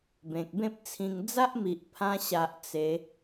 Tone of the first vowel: low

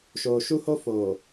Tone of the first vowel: low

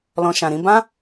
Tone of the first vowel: low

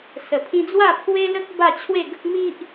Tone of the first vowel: low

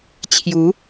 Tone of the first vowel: rising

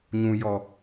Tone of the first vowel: high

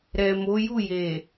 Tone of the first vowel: low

